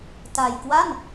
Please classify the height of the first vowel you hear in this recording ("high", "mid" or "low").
low